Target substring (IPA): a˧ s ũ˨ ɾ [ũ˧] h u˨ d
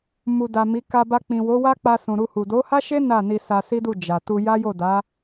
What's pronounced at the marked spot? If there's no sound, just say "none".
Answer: u˧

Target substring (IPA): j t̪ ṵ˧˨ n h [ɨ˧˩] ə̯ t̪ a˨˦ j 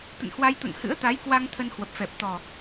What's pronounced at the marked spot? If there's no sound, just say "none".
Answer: ɨ̰˧˥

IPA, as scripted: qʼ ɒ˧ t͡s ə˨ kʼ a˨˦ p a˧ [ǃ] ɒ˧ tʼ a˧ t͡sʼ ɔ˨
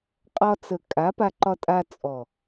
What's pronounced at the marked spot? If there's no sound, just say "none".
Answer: ǃ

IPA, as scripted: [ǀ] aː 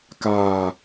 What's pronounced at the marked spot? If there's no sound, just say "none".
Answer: k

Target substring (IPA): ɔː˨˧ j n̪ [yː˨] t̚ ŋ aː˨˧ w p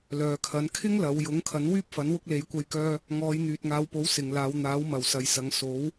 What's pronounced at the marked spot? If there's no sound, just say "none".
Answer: yː˨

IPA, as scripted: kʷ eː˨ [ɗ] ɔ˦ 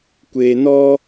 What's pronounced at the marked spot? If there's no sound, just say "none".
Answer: n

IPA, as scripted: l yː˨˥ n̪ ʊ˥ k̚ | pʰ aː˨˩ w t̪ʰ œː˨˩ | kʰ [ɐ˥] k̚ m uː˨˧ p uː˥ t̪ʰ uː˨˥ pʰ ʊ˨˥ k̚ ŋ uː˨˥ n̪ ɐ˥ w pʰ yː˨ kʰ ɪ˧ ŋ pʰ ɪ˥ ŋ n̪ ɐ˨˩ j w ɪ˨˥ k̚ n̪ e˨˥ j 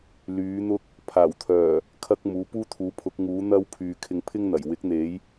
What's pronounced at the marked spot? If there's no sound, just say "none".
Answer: ɐ˥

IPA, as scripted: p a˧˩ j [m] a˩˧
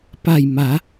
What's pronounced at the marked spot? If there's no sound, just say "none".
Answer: m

